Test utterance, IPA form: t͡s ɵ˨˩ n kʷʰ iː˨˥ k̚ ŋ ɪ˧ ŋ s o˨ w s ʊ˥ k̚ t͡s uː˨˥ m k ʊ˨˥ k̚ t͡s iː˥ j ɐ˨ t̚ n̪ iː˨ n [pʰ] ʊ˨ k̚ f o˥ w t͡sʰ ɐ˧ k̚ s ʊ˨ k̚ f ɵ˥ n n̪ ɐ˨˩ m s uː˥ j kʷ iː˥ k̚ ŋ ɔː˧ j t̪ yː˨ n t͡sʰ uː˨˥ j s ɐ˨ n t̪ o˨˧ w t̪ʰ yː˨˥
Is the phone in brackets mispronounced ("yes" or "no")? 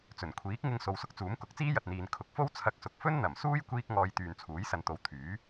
yes